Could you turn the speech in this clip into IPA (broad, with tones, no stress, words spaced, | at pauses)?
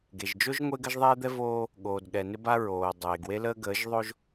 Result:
ɡe˨ʒd͡ʒo˦ʒ ŋʷe˦ɡə˦ʒðˤeː˦d̪ɛ˦ voː˦ | ɠoː˨dɠɛ˨ nɪ˦ba˦ɹoː˨ dˤeː˨ɡwe˦ləː˦ ɡəː˨˦ʒðˤo˦ʒ